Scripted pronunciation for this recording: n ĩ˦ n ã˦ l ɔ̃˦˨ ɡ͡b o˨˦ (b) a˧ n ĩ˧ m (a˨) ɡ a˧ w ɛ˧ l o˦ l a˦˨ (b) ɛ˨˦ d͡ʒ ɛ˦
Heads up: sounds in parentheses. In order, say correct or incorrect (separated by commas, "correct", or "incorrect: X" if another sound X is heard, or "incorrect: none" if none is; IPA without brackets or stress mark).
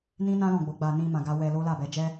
incorrect: ɡ͡b, incorrect: ã˨, correct